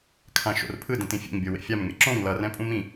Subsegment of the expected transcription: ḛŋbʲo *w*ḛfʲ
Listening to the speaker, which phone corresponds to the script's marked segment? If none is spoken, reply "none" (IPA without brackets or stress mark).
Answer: w